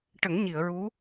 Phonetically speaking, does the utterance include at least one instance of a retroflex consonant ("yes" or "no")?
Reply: yes